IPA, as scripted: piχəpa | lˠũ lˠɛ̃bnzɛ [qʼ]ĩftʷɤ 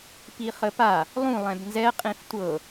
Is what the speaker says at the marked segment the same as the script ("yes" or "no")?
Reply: yes